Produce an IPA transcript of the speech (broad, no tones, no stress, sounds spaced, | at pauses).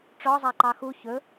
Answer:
ʈ͡ʂ ɔ zˤ a ǃ ɑ x u ç ɵ